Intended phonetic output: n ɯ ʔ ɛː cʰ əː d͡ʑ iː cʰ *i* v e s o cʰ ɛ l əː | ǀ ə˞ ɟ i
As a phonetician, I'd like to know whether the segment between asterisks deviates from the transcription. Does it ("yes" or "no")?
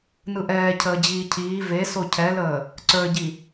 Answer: yes